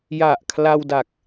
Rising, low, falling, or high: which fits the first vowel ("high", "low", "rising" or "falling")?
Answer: low